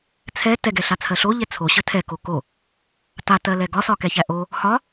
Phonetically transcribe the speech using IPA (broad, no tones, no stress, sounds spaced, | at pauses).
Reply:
t͡sʰ ɛ t ɛ ɡ ɛ ɬ a t͡sʰ ɜ ɬ o ʎ ɛ t͡sʰ o ɕ ə tʰ ɛ k o k o | t a t ɜ l ɛ ɡ ɒ s ɒ k ɛ ç æ ʔ o | h ɒ